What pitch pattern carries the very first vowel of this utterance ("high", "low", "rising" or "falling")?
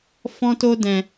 high